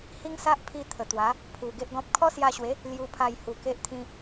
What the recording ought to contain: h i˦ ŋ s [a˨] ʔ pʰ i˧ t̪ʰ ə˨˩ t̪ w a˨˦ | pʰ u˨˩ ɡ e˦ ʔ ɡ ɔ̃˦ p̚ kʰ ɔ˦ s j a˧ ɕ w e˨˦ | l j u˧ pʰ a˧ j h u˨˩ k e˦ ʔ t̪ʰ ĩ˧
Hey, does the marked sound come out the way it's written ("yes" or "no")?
no